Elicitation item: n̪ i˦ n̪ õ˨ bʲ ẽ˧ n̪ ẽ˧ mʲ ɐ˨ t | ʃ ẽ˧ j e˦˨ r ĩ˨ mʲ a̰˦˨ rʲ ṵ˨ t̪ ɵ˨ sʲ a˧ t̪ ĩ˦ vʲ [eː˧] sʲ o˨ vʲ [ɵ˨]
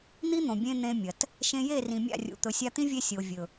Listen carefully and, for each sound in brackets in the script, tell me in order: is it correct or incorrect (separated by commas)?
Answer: incorrect, correct